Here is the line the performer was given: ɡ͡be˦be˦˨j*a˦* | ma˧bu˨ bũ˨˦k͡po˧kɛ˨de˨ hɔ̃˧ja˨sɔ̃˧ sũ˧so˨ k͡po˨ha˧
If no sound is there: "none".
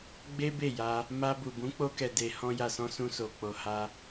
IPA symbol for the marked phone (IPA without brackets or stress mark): a˧